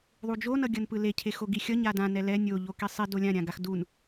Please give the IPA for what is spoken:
ðˤud͡ʒo nʌɡʲʌnpɯle cʰexoɡixʲʌ ɲadã nɛlɛ nʲo ʎokisˤi dolʲã ɾʲãɡaxdun

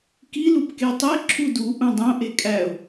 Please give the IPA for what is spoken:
kilupke tˤe ǁʰudu ʔũdˤõʔe kʼæʊ̯

